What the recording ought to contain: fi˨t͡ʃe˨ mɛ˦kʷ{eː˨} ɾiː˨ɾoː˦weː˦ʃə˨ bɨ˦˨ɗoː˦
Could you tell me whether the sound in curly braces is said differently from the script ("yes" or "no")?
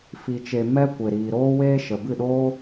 yes